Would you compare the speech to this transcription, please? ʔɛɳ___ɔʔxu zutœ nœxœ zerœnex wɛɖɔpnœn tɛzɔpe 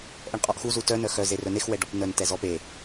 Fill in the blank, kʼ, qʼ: qʼ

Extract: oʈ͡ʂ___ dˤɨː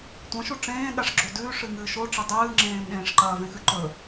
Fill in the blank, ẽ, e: e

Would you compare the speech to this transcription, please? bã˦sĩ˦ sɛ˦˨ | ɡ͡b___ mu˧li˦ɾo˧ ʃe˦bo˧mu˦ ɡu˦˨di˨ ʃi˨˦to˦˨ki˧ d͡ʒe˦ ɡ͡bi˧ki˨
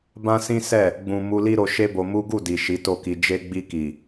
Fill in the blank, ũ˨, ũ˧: ũ˨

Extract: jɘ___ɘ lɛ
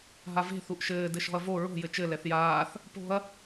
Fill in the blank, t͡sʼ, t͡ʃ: t͡ʃ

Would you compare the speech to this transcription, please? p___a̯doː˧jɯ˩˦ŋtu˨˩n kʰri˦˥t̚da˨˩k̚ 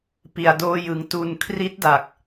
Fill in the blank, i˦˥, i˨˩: i˨˩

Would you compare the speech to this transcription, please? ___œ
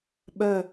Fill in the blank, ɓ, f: ɓ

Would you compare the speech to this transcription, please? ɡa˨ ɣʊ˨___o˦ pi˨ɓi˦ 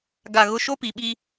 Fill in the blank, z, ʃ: ʃ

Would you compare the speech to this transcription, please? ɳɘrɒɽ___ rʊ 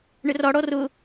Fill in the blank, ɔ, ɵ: ɔ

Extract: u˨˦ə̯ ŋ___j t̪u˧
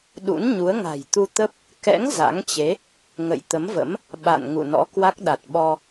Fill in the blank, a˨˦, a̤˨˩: a̤˨˩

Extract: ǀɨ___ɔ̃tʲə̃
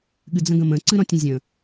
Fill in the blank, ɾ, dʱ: ɾ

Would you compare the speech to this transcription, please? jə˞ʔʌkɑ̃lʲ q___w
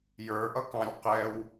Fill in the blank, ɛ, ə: ɛ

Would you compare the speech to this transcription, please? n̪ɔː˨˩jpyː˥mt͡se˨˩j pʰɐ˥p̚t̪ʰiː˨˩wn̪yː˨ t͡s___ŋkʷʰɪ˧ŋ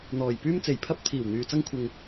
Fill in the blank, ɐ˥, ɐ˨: ɐ˥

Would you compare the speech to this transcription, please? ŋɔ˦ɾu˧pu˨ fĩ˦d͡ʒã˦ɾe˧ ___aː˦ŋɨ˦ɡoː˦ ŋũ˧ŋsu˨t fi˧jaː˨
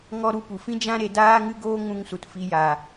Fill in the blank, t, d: d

